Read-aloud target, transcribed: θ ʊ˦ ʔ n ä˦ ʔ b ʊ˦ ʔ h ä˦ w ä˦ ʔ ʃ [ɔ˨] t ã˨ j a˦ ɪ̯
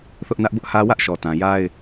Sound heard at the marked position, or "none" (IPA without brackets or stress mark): ɔ˨